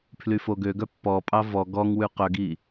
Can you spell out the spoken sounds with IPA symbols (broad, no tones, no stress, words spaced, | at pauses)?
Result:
pʰlyfoɡøɡœ pːɔpʼɑ vɔ ɡɔŋwʉ qœɡi